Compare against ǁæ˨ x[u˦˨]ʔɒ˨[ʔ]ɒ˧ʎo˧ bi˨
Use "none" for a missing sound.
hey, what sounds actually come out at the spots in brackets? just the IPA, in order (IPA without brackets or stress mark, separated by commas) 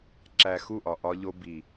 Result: u˦˨, ʔ